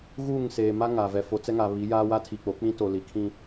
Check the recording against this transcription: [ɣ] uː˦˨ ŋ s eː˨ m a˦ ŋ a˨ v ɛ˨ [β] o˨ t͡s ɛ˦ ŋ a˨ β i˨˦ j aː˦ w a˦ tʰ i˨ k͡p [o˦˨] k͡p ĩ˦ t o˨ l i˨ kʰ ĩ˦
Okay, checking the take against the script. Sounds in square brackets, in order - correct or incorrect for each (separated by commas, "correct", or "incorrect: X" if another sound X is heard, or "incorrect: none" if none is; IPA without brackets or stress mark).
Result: correct, incorrect: f, incorrect: o˨˦